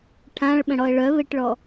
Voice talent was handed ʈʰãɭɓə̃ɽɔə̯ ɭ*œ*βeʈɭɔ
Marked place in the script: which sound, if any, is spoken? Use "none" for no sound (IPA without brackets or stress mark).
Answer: œ